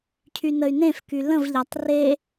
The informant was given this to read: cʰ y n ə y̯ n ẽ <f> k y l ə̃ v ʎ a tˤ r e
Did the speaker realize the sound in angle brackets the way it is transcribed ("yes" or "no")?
yes